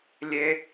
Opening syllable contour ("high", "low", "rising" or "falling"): high